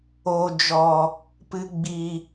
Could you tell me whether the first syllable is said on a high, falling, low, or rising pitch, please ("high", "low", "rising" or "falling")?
low